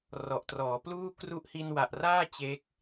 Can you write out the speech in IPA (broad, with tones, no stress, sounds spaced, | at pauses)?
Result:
r ɔ˨˩ ʔ t r ɔː˩˦ p l uː˥˩ k r u˦˥ ʔ h i˧ n w a˨˩ ʔ r aː˥˩ t͡ɕ e˦˥ k̚